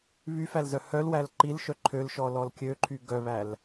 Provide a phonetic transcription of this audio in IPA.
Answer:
βyfælzœ hœlwæl ǃilʃœ ǃʰølʃɔlɔl kʲøǃʰy ɡœβæl

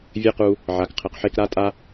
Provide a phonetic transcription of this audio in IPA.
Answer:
vʲɘ˦qu˧ | ʕa˨kqʰɘ˨qħe˧k ɾa˦ tʼa˦

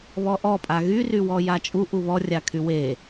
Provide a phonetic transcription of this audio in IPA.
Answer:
βɔʔɔ pʼaɣyrywɔ jat͡ʃʼu ʔuβɔrʲakʰy we

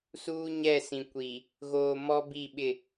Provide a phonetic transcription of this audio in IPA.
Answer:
suː˦ɲɛ˦˨sĩ˨ kʷi˨ | ɣoː˨ mɔ˦bi˦˨ɓɪ˦˨

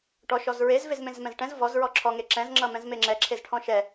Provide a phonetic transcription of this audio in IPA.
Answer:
ʈɔ ʃɔzɹez vezmẽzmɛ̃zʈɛ̃z vɔz ɹɔǁʰɔ ŋeǁɛ̃z ŋ͡ǁʌmɛ̃zmeŋ͡ǁɛ ǁʰezʈʰɔ̃ʃɛ

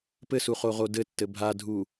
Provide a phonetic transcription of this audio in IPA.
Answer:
pɘsuχoʁo dɘtːɘ bʱadʱu

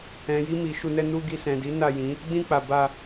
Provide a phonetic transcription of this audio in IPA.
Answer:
ɛ̃˨ji˧mi˨ ʃu˧nɛ˦ nu˧ɡi˧sɛ̃˨di˨˦ na˦˨jĩ˨˦ | dĩ˧k͡pa˨ ba˧

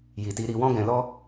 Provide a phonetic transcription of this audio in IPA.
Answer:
ji˨ti˧ ɾi˧wɔ̃˦ɡɛ̃˧lɔ˦

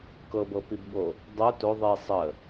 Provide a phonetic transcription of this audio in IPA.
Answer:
kɤbɤpibɠo | dˤo to ðˤi sˤə

